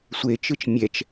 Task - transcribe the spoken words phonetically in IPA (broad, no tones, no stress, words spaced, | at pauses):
sʷet͡ʃɯt͡ʃ mʲɛt͡ʃ